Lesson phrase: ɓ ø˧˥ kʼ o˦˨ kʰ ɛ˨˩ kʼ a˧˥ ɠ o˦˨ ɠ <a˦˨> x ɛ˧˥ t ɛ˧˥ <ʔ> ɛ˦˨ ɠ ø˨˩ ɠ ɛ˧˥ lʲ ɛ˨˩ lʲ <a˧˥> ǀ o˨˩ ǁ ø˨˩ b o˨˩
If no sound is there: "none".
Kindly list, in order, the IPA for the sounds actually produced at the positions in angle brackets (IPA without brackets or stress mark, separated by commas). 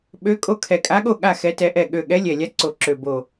a˦˨, ʔ, a˧˥